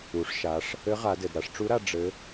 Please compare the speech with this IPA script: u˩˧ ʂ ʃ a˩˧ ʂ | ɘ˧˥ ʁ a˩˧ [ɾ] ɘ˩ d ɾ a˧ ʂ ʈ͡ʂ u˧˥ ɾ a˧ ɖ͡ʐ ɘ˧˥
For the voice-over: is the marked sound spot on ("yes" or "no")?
no